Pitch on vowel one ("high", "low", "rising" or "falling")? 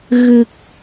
low